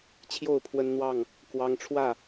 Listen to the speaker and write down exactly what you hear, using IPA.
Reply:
t͡ɕʰ j o˥˨ ʊ̯ pʰ w ə˦ n n̪ w ɑ˥˨ ŋ | k w ɑ˦ ŋ ʈ͡ʂʰ w ä˥˨

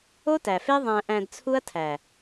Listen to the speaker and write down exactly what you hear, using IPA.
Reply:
o˦ t æ˨ f e˦ ðˤ æ̃˧ ʔ æ̃˧ d t͡sʰ u˦ ɐ̯ tʰ æ˨

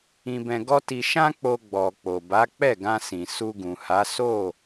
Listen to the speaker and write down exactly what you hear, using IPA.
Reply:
ĩ˧ b ɛ̃˧ ɡ ɔ˦ t i˧ ʃ ã˦ k͡p o˧ ɡ͡b ɔ˨ k͡p o˨ b a˨˦ k͡p ɛ˦˨ ɡ ã˧ s ĩ˨ s u˧ ɡ ũ˨ h a˨˦ s o˦˨

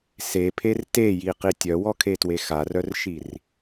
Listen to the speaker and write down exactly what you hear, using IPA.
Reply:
s e pʰ e r t e j i q i tʲ œ w ɔ kʰ e t w e x a r œ r ʃ i r

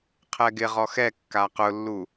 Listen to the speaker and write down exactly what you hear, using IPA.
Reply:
qʰ ɛ ɡ ɪ ʁ ɔ x ɛ kː a q ʊ lː u

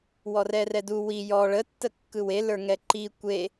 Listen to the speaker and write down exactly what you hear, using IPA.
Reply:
w ɔ r ɛ r ɛ d u w i j ɔ ɭ ə tː ə kː ɯ w e l ə˞ ŋ ɛ ǃ i kʷ e

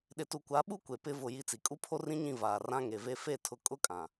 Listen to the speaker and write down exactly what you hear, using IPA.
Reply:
ɗ ɪ˨ t u˨ kʷ a˨˦ ɓ u˦ kʷ e˨ p ɪ˦ v ʊ˦˨ j i˦ t͡s i˨ kʼ u˦ pʰ o˦ r ĩ˦ ɲ ĩ˦˨ v aː˨ r ã˦ ŋ e˨ v e˦ f e˦˨ tʰ ʊ˨ kʼ ʊ˦ kʼ ã˨

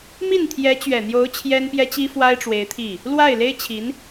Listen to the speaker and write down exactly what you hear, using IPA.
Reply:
m i˥˩ n t̪ʰ j ɛ˧˥ t͡ɕ ɥ ɛ˨˩ n̪ j o˧˥ ʊ̯ t͡ɕʰ j ɛ˥ n p j ɛ˥ t͡ɕ i˥ f w a˥ ɪ̯ ʈ͡ʂ w e˧˥ ɪ̯ t̪ʰ i˥˩ | l w a˥˩ ɪ̯ l e˥ ɪ̯ t͡ɕʰ i˧˥ n

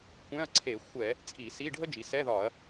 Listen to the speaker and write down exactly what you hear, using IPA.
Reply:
kʷ ɛ̃˧˥˧ ɐ̯ ǀʰ e˧˩˧ xʷ ɛ˧˩˧ | t͡sʼ i˧˩˧ s i˧˥˧ ɖʱ ə˥ d͡ʒ i˩˧ s ɛ˧˥˧ ð ɒ˧˩˧ ɐ̯

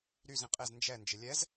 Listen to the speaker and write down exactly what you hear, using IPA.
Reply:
ɾ y z ĩ qʼ e z n d͡ʒ ɛ n d͡ʒ ɪ lʲ ɛ z

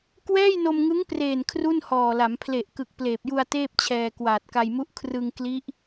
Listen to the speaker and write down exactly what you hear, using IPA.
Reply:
k w ɛː˥˩ j n o˧ m ŋ ɯ˦˥ ŋ p r eː˨˩ n kʰ r u˥˩ n h ɔː˨˩ l a˩˦ m pʰ l e˨˩ ʔ k ɯ˨˩ k̚ p l eː˨˩ p̚ j u˧ a̯ t eː˥˩ p̚ t͡ɕʰ ɛː˧ k w aː˨˩ t̚ k a˧ j m u˦˥ ʔ kʰ r ɯ˧ ŋ k l i˦˥ ʔ

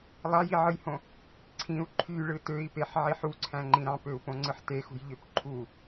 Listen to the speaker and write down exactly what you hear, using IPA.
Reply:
lˠ ɑ j i ʕ ɯ j h õ | ǀʰ ĩ u̯ ǃʰ y ɭ ɯ t ø i̯ p e ħ ʕ i ħ u ǀʰ æ̃ ŋ͡ǃ ĩ ɾ ɑ̃ p ø u̯ p õ ŋ͡ǀ ɯ ħ t e x ṳ j ʎ ø p ǃʰ u

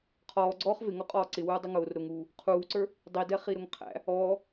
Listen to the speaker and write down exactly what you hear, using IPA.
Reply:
qʰ ɔː ɡ͡ǀ ɔː χ v ɪ ŋ ɔ qʼ ɔː ǀ ɪ w uː dˤ ʊ ŋ ʊː r ɾ ʊ ŋ uː | qʰ uː ǀ ə˞ | dˤ i d ɛ χ i ɾ ʊ ŋ qʰ æ̰ | ɔː

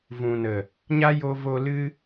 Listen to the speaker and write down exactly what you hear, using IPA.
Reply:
v ũ˨ n ə˨ | ɲ a˦ j o˧ v o˧ l ɨ˦

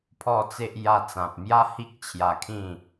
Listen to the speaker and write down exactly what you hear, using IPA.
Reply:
pʰ ɔ˥˧ t͡s e˦ ʔ j a˧ t͡s ã˨ p̚ m j a˦ h i˦ k̚ t͡ɕʰ j a˧ kʰ ĩ˥˧

